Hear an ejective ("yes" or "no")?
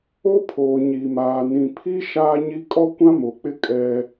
yes